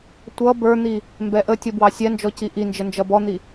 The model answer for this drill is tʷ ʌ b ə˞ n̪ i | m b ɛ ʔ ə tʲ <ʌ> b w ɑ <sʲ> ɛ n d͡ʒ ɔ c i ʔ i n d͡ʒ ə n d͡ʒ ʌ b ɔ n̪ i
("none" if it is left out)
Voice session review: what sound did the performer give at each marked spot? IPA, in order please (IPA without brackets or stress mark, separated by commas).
ʌ, sʲ